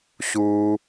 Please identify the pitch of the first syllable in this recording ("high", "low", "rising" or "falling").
high